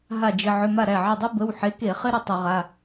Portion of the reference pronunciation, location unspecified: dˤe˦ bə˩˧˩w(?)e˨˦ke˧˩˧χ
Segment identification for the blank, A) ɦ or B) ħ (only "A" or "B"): B